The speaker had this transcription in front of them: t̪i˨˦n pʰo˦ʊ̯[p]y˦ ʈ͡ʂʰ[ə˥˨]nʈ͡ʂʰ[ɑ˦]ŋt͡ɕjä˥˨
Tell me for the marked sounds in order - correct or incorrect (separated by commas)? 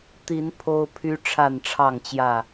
incorrect, incorrect, incorrect